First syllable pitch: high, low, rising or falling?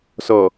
low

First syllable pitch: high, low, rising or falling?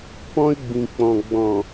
high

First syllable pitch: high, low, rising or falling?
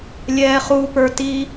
low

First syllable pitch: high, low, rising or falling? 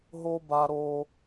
high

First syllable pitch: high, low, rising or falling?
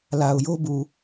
low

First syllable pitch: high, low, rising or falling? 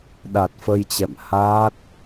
low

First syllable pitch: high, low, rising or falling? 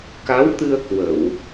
rising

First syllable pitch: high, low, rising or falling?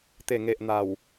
low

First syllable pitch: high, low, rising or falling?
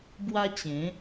high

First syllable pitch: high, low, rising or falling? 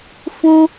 high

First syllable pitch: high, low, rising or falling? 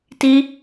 high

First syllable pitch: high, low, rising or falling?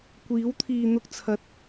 rising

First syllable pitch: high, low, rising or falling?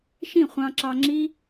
falling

